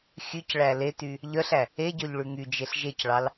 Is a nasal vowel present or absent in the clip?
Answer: absent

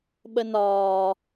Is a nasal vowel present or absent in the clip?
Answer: absent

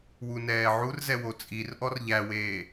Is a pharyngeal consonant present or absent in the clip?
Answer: present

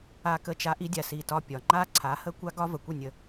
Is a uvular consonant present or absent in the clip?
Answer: absent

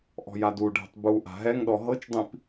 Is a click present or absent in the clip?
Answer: absent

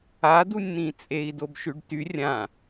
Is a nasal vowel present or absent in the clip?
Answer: present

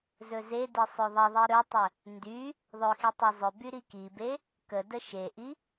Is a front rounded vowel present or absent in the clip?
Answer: present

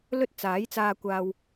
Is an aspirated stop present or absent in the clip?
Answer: absent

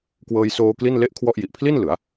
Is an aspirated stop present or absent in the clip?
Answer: present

